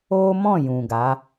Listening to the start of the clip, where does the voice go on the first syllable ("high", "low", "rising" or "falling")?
high